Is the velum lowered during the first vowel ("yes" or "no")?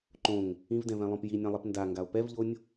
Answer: yes